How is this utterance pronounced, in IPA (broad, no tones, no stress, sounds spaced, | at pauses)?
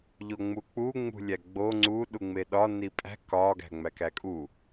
ʎ o ŋ͡m u k͡p u ŋ͡m ṳ lʲ æ ɡ͡b o ŋ͡ǀ u ɗ u ŋ͡m e ɗ ɒ n i pʼ æ̤ k ɒ ɡ æ̤ ŋ͡m æ k æ kʼ u